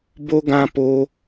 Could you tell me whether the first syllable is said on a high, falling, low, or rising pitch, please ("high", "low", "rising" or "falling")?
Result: high